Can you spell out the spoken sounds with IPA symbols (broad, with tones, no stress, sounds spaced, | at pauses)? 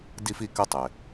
d i˧ f i˧ k ɘ˧ tˤ ɪ˩